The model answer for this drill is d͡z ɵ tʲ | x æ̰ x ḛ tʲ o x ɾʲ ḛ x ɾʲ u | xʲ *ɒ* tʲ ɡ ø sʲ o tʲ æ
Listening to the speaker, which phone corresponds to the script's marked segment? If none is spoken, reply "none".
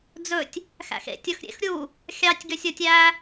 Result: ɑ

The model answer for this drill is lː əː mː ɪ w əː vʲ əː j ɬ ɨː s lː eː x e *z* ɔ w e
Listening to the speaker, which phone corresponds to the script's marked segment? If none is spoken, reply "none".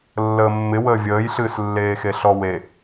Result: ɬ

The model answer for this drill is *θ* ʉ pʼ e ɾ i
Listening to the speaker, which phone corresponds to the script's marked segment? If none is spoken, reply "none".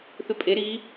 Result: θ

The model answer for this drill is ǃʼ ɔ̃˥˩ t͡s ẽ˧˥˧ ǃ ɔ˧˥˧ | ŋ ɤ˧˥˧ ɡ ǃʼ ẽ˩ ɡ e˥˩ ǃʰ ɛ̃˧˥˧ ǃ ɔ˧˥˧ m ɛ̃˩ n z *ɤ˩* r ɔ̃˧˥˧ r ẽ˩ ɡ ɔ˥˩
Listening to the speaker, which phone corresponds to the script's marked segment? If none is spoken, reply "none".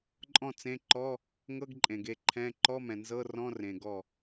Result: ɤ˧˥˧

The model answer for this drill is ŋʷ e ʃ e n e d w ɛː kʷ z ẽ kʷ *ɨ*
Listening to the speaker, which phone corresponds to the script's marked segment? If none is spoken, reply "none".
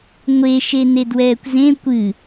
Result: ɨ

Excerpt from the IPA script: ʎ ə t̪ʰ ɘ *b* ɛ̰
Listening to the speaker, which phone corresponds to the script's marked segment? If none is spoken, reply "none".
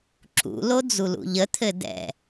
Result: d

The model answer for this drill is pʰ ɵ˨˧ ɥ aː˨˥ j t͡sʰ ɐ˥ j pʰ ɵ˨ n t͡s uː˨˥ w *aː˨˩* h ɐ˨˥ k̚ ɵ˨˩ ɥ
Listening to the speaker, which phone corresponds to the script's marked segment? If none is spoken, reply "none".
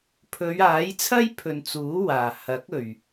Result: aː˨˩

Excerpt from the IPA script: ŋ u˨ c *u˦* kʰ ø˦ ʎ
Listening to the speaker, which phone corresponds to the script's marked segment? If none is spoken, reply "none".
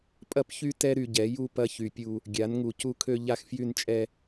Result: u˦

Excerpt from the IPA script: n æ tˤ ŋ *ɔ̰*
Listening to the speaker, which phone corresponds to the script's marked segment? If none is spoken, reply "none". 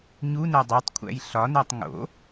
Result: o̰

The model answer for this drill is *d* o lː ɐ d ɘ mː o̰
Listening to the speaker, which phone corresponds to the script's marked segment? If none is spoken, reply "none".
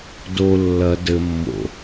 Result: d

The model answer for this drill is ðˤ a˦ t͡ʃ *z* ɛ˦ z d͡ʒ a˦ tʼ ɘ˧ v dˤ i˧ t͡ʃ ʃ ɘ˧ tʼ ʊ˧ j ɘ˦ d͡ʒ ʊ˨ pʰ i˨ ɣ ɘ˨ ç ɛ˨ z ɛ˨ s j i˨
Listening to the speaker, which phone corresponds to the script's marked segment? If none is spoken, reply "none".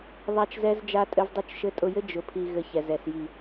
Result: z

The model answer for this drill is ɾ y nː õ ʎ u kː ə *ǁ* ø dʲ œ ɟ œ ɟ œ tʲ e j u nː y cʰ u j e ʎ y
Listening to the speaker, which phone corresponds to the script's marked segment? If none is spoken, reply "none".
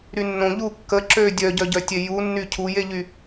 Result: ǁ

